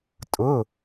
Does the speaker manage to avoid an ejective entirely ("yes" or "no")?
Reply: no